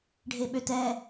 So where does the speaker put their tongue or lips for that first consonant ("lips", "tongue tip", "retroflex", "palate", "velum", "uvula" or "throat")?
retroflex